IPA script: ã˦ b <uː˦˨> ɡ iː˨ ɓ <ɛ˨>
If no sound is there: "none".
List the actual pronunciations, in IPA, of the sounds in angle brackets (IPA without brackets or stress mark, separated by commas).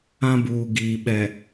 uː˨, ɛ˨